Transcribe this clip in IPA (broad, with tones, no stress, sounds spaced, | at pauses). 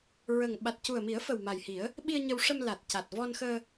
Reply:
ɹ ə˨˩ ŋ ɓ a˨˩ t̚ c u˨˩ ə̯ m i˨˩˦ ə̯ f ə˨˩ w m a˨˩ j h i˨˩˦ ə̯ | ɓ i˧ ə̯ ɲ ə˧ w ʂ ə˧ m l a˨˩ t̚ c a˨˩ t̚ v ɔ˧ n x əː˧